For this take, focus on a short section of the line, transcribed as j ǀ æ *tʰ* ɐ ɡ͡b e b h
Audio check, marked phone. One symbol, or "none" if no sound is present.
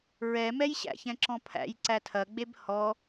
tʰ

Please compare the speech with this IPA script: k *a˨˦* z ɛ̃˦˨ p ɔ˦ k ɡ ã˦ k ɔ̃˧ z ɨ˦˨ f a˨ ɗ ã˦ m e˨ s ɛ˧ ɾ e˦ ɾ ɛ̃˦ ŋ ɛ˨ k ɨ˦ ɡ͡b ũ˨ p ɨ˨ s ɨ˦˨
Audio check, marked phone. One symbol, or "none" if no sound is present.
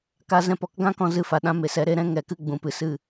a˧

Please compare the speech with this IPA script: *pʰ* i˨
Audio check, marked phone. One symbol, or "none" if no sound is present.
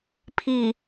pʰ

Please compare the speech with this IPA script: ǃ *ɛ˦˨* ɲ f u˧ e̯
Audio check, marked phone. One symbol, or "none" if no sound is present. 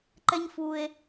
ɛ˦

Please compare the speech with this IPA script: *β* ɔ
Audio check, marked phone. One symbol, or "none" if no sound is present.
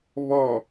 β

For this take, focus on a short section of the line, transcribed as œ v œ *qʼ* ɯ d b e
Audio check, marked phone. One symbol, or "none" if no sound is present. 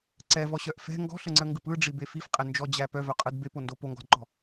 qʼ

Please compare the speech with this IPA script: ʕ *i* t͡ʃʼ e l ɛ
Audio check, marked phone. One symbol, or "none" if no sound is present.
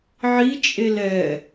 i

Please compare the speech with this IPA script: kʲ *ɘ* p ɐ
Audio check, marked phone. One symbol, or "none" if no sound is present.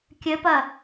ɘ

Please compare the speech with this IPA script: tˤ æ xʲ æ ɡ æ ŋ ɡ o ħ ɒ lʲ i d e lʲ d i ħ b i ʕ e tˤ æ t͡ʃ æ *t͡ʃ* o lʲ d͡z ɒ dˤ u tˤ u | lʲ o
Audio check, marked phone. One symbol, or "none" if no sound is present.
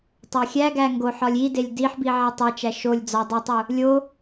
ʃ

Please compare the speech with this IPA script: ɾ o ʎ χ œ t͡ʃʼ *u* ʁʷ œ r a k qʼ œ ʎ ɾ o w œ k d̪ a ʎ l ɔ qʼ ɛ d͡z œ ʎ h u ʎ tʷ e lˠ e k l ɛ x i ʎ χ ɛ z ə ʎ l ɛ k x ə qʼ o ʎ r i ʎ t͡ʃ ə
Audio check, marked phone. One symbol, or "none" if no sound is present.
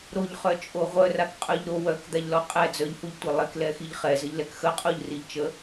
o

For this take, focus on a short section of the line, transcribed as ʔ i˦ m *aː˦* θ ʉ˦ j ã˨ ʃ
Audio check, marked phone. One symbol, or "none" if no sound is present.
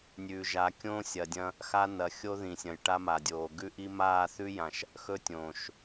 aː˦˨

